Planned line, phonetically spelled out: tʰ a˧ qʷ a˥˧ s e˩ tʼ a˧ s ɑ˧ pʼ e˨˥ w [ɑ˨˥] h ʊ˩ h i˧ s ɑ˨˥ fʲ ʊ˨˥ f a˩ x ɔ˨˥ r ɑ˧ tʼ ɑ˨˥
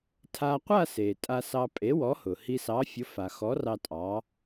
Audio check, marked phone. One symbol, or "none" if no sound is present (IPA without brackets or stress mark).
ɔ˨˥